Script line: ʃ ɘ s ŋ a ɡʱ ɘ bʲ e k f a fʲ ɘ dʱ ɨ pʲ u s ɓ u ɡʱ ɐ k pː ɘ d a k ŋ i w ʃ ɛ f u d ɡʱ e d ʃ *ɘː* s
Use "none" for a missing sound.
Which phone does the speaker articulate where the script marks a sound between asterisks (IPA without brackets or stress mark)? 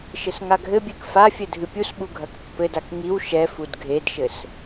ɘ